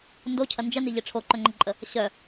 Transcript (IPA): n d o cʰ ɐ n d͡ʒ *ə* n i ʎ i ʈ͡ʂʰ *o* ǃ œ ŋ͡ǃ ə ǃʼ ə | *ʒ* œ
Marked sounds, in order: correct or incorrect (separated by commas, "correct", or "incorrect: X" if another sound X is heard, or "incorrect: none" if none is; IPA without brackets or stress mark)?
correct, correct, incorrect: ɕ